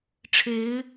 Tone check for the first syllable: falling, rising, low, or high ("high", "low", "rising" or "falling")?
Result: rising